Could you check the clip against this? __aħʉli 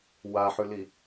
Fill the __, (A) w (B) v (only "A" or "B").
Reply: A